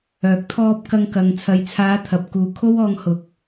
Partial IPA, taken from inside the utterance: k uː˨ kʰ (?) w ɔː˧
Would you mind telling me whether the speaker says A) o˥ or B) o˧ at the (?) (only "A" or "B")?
A